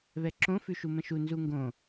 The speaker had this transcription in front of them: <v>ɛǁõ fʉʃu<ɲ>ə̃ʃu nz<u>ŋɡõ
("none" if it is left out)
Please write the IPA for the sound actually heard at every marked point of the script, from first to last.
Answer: β, m, u

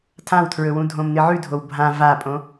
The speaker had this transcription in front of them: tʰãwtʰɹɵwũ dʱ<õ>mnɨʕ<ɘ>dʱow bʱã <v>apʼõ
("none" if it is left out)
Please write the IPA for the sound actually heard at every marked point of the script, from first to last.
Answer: õ, ʉ, v

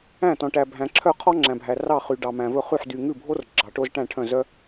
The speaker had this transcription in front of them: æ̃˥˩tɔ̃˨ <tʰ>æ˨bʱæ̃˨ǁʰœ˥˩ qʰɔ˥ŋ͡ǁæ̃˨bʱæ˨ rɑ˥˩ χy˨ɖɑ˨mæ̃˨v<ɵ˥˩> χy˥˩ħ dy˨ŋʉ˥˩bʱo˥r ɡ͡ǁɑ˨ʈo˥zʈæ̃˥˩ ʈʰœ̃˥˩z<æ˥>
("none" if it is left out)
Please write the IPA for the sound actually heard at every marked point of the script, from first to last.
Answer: ʈ, ɵ˥˩, œ˥

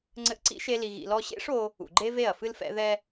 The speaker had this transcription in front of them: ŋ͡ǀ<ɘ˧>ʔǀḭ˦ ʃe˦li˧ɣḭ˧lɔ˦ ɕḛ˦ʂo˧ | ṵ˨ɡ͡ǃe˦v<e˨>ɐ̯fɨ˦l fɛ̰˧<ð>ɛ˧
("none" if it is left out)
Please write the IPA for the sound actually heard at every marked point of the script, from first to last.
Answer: ɘ˧, e˦˨, ð

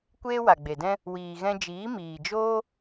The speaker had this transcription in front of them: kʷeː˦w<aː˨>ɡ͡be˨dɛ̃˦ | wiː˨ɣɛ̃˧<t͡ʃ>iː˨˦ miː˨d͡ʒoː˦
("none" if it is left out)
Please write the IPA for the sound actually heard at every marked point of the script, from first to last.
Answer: a˨, d͡ʒ

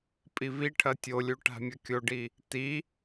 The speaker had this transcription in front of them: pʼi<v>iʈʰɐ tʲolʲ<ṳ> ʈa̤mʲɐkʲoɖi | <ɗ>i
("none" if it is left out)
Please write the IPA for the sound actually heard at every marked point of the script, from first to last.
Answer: v, u, t

